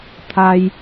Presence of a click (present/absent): absent